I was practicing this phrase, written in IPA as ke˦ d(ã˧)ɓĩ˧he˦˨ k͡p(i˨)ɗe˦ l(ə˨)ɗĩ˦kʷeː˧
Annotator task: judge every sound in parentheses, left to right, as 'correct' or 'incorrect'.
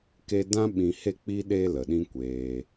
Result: incorrect: ã˦, incorrect: i˦, correct

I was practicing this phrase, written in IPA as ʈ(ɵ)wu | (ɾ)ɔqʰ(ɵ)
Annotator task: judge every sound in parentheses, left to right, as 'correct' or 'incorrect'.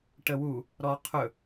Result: incorrect: ə, correct, correct

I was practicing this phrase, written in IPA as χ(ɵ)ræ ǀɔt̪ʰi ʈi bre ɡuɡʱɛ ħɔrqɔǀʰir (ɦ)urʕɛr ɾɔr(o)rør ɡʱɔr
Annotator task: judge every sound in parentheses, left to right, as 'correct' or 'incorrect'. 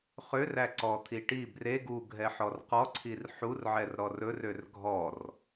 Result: incorrect: ø, incorrect: ħ, incorrect: ɵ

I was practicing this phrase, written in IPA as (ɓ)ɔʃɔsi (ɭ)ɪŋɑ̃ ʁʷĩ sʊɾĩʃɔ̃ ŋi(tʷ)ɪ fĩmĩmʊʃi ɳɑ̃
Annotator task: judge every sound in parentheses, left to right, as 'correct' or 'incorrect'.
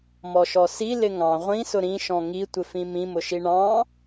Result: incorrect: m, incorrect: l, correct

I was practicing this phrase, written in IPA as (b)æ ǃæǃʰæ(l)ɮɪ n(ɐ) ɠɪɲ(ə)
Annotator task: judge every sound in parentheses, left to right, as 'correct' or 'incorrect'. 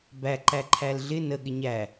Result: correct, correct, incorrect: ə, incorrect: æ

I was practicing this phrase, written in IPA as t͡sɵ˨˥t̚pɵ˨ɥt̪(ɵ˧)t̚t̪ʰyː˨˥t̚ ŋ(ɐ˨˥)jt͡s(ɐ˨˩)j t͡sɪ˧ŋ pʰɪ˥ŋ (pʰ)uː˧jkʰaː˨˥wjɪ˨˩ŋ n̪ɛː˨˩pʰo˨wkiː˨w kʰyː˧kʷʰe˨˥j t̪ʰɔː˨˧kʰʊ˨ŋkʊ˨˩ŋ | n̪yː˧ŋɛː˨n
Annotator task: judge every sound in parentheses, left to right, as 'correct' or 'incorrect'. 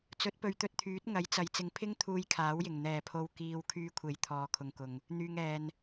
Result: correct, correct, incorrect: ɐ˨, incorrect: t̪ʰ

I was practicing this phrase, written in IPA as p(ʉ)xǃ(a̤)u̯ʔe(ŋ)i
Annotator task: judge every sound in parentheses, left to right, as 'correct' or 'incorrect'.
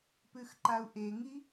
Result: correct, incorrect: a, correct

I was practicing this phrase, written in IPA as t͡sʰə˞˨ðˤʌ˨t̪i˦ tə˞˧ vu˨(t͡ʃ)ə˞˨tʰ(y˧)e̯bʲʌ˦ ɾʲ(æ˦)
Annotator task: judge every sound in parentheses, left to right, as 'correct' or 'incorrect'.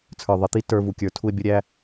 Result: incorrect: kʲ, incorrect: u˧, correct

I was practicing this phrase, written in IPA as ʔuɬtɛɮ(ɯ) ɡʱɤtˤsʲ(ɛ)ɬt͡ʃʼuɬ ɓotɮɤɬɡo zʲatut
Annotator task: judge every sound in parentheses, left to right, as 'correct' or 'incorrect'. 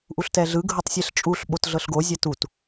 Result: correct, incorrect: e

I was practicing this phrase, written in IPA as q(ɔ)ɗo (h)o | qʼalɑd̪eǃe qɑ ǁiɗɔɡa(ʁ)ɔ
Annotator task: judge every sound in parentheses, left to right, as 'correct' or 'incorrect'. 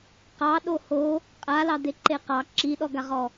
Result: incorrect: ɑ, correct, correct

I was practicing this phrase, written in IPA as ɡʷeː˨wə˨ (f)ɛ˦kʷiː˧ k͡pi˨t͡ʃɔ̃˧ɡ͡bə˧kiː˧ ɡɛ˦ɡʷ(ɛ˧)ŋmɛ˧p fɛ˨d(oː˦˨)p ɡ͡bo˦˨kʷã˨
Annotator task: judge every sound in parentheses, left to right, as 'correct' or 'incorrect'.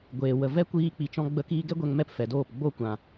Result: incorrect: v, correct, correct

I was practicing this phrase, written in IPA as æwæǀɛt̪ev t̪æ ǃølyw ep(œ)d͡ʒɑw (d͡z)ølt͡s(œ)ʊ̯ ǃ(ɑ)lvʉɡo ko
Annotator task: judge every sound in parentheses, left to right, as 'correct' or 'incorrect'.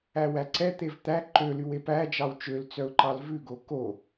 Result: incorrect: æ, incorrect: t͡ʃ, correct, correct

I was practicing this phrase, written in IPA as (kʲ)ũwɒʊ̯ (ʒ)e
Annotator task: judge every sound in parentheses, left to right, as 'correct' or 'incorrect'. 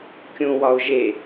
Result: correct, correct

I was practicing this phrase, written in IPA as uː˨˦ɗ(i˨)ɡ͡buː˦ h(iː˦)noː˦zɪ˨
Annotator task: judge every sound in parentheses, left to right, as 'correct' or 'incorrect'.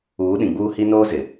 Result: incorrect: ĩ˨, incorrect: i˦

